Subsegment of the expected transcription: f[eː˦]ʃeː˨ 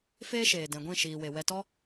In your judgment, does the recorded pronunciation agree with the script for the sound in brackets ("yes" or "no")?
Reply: yes